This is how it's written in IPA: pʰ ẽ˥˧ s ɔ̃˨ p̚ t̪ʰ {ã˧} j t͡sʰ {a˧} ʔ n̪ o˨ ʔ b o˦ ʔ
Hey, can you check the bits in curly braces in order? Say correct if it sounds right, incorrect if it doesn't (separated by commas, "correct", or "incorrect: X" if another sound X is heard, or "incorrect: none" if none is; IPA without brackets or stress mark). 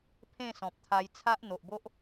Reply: incorrect: a˧, incorrect: a˦